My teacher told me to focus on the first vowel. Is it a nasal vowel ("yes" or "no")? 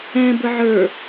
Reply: yes